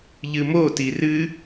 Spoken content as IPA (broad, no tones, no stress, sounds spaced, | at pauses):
ʎ ɨ m o t i r ɨ